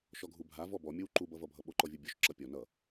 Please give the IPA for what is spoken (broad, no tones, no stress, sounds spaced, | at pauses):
ʃ ɔ ɡʱ u bʱ a v ɔ b ɔ mʲ o w ǃ u b ʌ v ʌ bʱ ʌ ɓ o ǃ ɔ vʲ u bʲ o ʃ ǁ ʌ pʲ ɔ n ʌ